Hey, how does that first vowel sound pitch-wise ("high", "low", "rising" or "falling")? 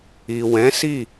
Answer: low